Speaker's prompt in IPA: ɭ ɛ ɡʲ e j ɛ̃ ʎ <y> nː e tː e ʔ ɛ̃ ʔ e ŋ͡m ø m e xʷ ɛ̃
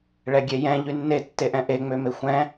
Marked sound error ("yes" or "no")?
no